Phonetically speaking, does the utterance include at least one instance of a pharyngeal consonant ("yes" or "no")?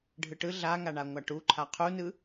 no